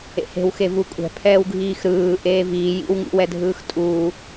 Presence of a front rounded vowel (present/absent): absent